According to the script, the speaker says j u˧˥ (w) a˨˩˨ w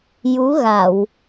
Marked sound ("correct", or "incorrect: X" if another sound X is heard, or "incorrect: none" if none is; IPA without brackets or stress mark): incorrect: ɣ